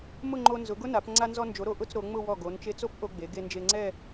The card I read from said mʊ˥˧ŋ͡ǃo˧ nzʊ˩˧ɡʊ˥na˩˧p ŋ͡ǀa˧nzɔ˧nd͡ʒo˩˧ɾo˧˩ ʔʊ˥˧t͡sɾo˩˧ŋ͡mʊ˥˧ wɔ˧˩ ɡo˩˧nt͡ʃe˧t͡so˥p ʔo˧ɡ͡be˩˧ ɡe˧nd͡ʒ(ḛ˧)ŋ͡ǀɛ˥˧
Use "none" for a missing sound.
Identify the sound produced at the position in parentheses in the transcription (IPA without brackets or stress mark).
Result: e˧